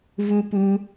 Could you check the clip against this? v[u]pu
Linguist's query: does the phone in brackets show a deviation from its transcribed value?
no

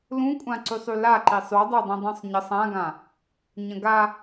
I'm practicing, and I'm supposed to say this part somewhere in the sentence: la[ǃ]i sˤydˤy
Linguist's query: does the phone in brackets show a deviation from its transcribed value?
no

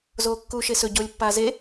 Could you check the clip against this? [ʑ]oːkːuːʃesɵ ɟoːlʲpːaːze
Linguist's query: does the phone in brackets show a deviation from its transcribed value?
yes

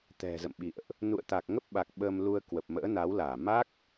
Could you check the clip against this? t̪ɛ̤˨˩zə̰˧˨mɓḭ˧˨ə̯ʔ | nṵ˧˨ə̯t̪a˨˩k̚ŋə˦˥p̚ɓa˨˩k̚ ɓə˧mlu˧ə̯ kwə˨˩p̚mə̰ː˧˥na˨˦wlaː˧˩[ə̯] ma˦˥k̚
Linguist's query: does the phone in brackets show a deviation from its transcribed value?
yes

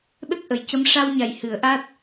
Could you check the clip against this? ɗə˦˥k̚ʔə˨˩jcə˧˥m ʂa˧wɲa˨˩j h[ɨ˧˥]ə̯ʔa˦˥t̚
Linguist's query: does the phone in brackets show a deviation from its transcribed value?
yes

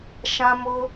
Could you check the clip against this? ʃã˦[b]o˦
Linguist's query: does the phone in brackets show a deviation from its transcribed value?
yes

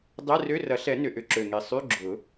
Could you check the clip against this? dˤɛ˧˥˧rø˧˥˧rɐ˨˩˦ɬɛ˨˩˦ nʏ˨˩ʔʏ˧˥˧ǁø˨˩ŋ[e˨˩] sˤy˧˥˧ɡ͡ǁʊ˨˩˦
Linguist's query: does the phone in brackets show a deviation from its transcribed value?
no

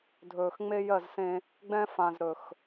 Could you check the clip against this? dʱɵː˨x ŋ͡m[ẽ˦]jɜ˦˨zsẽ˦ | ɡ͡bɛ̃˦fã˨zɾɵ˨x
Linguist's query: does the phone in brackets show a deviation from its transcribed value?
yes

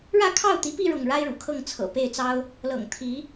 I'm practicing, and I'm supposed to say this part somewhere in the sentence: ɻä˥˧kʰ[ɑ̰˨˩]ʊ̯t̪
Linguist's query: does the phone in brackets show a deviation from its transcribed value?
yes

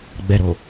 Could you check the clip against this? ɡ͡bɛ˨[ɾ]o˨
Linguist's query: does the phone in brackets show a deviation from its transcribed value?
no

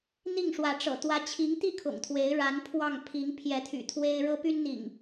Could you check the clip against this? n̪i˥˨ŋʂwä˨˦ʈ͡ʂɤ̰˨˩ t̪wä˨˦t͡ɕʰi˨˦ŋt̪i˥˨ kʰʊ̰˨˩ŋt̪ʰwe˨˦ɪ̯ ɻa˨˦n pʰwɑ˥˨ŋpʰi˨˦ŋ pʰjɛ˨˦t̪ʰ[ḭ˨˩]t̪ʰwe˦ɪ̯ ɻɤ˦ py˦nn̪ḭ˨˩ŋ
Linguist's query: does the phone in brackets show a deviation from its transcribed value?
yes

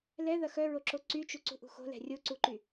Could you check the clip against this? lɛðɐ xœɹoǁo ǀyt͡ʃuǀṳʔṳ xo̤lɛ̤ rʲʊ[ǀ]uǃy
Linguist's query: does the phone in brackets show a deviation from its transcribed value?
no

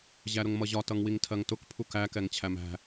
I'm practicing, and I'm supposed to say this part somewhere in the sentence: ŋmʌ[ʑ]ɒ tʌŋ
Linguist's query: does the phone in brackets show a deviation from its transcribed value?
no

